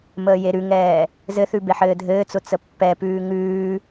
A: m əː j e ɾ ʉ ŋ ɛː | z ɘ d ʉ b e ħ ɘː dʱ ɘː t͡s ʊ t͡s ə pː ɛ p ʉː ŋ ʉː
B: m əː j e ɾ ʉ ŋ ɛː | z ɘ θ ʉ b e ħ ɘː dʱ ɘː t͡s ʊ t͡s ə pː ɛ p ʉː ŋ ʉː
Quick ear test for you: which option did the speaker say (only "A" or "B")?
B